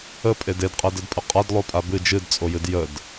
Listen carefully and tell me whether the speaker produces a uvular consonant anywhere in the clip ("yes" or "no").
yes